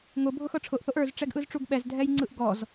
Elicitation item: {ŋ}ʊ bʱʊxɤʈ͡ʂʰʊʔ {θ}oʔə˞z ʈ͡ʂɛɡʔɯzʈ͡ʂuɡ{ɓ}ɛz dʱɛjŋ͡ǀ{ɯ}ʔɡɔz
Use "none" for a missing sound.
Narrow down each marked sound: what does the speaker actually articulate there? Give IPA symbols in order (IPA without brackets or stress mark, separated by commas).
ŋ, θ, ɓ, ɯ